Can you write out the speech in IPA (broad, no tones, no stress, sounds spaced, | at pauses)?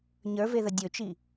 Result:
ɲ ə˞ v e ð ə dʲ ɵ t͡ʃ i